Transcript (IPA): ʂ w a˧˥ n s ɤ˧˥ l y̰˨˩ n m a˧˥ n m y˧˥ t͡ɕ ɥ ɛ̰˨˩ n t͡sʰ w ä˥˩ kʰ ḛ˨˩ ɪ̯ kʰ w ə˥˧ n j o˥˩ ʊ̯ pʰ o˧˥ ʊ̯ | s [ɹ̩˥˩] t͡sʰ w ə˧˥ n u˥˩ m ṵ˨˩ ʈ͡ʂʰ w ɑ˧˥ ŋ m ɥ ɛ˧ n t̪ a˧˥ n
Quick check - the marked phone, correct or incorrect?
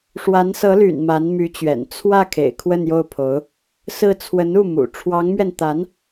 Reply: correct